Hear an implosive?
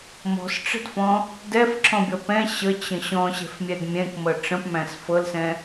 no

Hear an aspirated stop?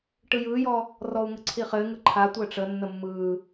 yes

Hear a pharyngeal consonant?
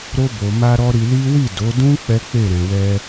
no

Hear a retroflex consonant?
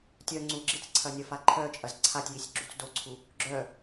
no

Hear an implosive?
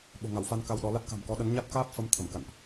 yes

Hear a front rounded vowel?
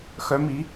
yes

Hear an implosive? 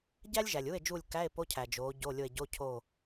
no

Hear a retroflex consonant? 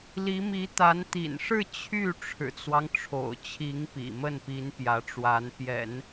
yes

